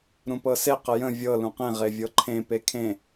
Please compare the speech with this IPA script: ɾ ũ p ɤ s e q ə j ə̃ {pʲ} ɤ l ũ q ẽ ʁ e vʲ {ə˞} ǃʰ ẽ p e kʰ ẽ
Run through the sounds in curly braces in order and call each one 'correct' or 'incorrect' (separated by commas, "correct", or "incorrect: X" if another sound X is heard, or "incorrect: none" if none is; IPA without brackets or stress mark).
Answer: incorrect: vʲ, incorrect: ɤ